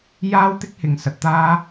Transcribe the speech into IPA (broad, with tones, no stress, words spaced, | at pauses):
jaː˥wt̪ɪ˥k̚hɪ˨ŋ sɐ˨t̚t̪aː˥